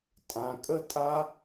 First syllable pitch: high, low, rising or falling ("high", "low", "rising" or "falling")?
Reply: low